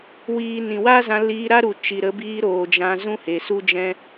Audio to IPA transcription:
wiː˨ nĩ˨wa˦zã˧ liː˧ ɾa˦ɾu˨ t͡ʃi˨ ɾə˨˦biː˧ɾoː˨ d͡ʒã˧zũ˦he˨ su˦d͡ʒɛ̃˦

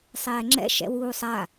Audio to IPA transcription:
sˤɛːŋ͡ǁɛ̰ ʃɛ̰wuːsˤa

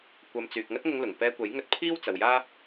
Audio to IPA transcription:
kʷɐ˨mt͡syː˨k̚ ŋɐ˥t̚ŋʊ˧ŋlʊ˨˩ŋ pɛː˧kʷɐ˨˥jŋɵ˧t̚ pʰiː˥wt͡sɐ˨wjaː˥

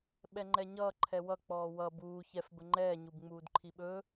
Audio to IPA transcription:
ɓɛŋ͡ǃɛɲʌː ǃʰɛwʌ k͡pɔːwʌ buː çɛf bəŋ͡ǃɛː ɲubŋ͡muːdǃʰiɓɵ

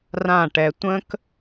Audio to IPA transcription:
rã˦˨ʈɛ˧ tʷə̃˦k

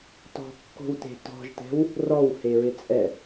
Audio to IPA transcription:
tɔ̤kːo̤wte̤ tɔ̤ʒtɛ̤w | rɔwheɹɪ t͡sʼɛ

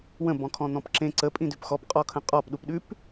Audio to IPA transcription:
wə̃bɔ̃kʰɔ̃ n̪ɔ̃pǁẽ ǀəpʼĩ dʉpxɔpqʼɔkʰə̃ qʼɔpɗupɗʉp

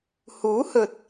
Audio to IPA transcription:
huː˨˥hɵ˨t̚

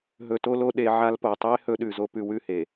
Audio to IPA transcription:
ɦɵ˨to˦lo˦ ɗe˨˦ʕa˦lpo˨ tˤe˦ hɵ˦ɗʉ˨zo˦ pʉ˦wʉ˦˨he˨

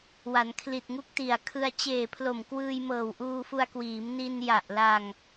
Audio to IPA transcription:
wa˩˦nkʰli˨˩t̚ŋu˦˥k̚ti˨˩a̯ kʰɯ˧a̯ t͡ɕeː˨˩pʰlo˨˩m kwɯː˧jmɤː˨˩wʔuː˧fu˧a̯ kwiː˩˦mni˧n ja˨˩ʔla˧ŋ

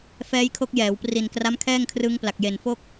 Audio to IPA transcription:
fɛː˦˥jkʰo˦˥k̚jɛː˩˦w pri˨˩nkra˦˥mkʰɛː˥˩ŋkʰrɯ˦˥ŋ pla˨˩k̚je˨˩nfo˥˩k̚

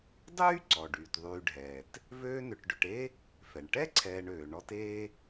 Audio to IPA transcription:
dˤyː˥ ǀɔ˩ɖyː˩tðˤyː˨ɖʱɛː˩t | vøː˦nʏ˨ʈɖʏ˨ʈe˥ | fɛ˩ɳʈɛ˥ǀʰɛː˨ɳ øː˩ɳɔ˦teː˥

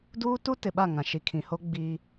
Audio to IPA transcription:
duː˦tu˦tɪ˨ɓa˦˨ ŋã˨ʃi˨kʰĩ˨ho˦ ɡ͡biː˦

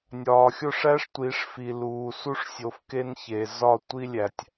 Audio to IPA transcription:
nʲɒː˨xʲo˦ʂæ˦ʂ tʷi˨˦ʂfi˨ luː˨ su˦ʂsʲo˨fke˦n çe˨ zɒ˦˨ tʷi˦lʲæ˨tʲ

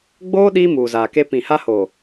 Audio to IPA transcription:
ɡ͡boː˦ ɗiː˦muː˨zaː˨ke˦ pĩ˨ ha˦ho˨

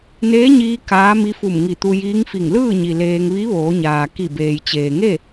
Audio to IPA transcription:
neː˧˥ɲiː˧ kaː˧˥mi˧˥fu˧˩m ŋi˧˩ t̪u˧jiː˧˥ŋfi˧˩ŋ lɯː˥˨ɲi˩ leː˧ŋ ʋi˧˥ ʋoː˩˧ɲaː˩ ki˧˩beː˩jt͡ɕeː˩ŋe˥˨

